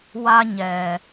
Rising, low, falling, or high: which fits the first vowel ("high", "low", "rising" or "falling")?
high